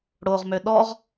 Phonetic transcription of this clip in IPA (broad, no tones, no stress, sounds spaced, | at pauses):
ɽ o ʁ m ø ɗ ɔ ʁ